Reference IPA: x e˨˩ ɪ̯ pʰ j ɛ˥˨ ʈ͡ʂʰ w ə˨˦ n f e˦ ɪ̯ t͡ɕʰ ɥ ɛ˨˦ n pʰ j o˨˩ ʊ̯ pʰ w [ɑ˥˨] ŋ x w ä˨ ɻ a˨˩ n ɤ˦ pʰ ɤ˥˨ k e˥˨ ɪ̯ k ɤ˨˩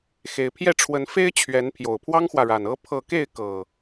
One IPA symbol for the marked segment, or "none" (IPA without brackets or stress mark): ɑ˦